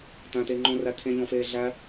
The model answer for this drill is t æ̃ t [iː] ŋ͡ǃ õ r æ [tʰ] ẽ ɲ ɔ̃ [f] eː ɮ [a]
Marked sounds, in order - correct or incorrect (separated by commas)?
incorrect, correct, correct, incorrect